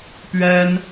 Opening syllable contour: high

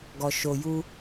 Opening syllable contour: low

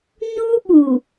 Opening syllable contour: high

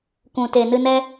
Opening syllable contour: low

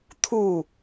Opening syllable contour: falling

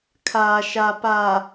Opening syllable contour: low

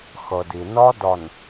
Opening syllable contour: low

